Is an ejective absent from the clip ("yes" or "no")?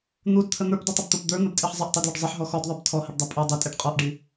no